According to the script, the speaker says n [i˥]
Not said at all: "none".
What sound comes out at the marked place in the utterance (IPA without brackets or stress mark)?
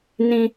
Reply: ĩ˥